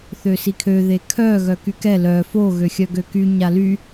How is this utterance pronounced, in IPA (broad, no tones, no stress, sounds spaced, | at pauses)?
θ ø s i kʰ ø ð e kʰ œ ɣ œ k y k ɛ l œ f o ɣ ø xʲ œ ɡ ø k y ɲ a l y